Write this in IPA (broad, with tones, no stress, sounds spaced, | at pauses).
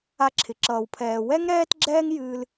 a˧ ǁʰ ɪ˩ ǁ ʌː˩ w pʰ ɛː˩ w ɛ˥ ŋ ɾ ɛː˥ t ɡ͡ǁ ɛː˥ ŋ j ɨː˧ l